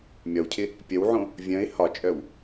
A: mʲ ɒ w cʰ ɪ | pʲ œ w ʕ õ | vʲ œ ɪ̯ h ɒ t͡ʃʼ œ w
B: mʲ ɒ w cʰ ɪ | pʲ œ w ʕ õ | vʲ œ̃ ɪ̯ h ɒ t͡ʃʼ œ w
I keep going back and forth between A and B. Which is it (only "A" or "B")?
B